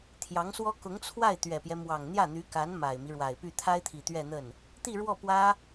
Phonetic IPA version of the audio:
t̪ʰ j ɑ˧˥ ŋ s w ɔ˥ k ʊ˧˥ ŋ t͡sʰ w a˥˩ ɪ̯ t̪ ɥ ɛ˨˩ p j ɛ˦ m w ɑ˨˩ ŋ n̪ j ä˥˩ n̪ y˧˥ k a˧˥ n m a˨˩ ɪ̯ m i˦ ɻ w a˨˩ ɪ̯ p y˥˩ t̪ʰ a˥ ɪ̯ t̪ʰ i˨˩ t̪ ɥ ɛ˥˧ n̪ ə˥˩ n | t̪ i˥˧ ɻ w ɔ˥˩ p w ä˥

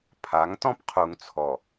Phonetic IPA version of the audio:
pʰ a˨˦ ŋ t ɔ̃˦ p qʰ u˨ ŋ t͡sʰ ɔ˨

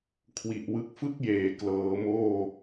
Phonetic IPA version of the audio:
kʰ w i˨˩ ʔ w ɯ˦˥ k̚ f ɯ˥˩ k̚ j eː˩˦ k l ɤː˩˦ m oː˥˩

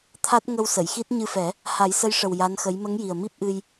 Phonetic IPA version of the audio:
t̪ʰ a˦˥ t̚ ŋ ə˧ w s ə˨˩˨ j x i˦˥ t̚ ɲ ɨ˧ f ɛ˨˩˦ | h a˨˩˦ j s ə˧˥ j ʂ ə˨˩ w j a˧˥ n x ə˧˥ j m ə˧˥ ŋ j i˨˩ ə̯ m i˦˥ p̚ ʔ ɨ˧ j

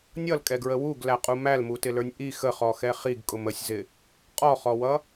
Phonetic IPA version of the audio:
nʲ ʌ l kʼ ɛ ɡ ɹ ə w u ɡ l æ qʼ u m æ l m u t ɪ l ə˞ nʲ ʔ i x ə χ ɔ x ɛ χ i ɡ kʼ ʊ m ə sʲ z ɪ | qʼ ɔ χ ɔ w ʌ

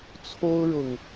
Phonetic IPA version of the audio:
t͡sʰ o˦ ʊ̯ ɻ ʊ˨˩ ŋ

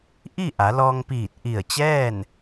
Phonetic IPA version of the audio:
ʔ i˥˨ ʔ a˩˧ l ɔː˧ ŋ p iː˧˩ t̚ ʔ i˧˩ ə̯ t͡ɕ ɛː˥˨ n

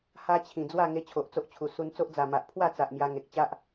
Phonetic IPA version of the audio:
h a˦ t͡ɕʰ ĩ˨˩ d͡z w a˥˧ ŋ e˧ t͡ɕʰ o˨ ʔ t͡s o˦ ʔ t͡ɕʰ u˨˩ s u˧ n t͡s o˦ ʔ d͡z a˨˩ m a˨ ʔ pʰ w a˥˧ t͡s a˨ ʔ m j a˧ ŋ e˨ k̚ t͡ɕ a˦ ʔ

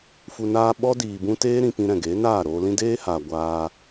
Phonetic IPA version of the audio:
f u˨ n aː˧ ɓ ɔ˦ d iː˨ b ũ˧ t eː˦ ɾ ĩ˧ p ĩ˧ ɾ ɛ̃˨ ɡ e˨˦ n aː˦˨ ɾ oː˧ l ĩ˦ d eː˦ h aː˨ ɡʷ aː˦

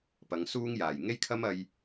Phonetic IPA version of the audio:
p ɐ˨˧ ŋ s uː˥ ŋ j aː˨˩ j ŋ e˥ j kʰ ɐ˥ m ɐ˧ j

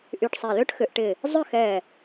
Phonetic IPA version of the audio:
ʔ y˧˩ ʈ sˤ ɛ˧˩ l ø˥ ʈ x ʏ˩˧ ʔ ʈ ɪ˧˩ | zˤ ʏ˥˧ x ɛ˧˩

